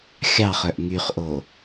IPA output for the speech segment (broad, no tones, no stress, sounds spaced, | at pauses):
xʲ ɑ χ œ ʔ ŋ y χ ʔ o